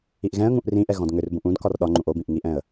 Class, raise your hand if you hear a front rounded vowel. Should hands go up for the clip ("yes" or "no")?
yes